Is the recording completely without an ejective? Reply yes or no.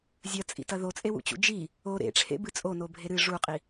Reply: no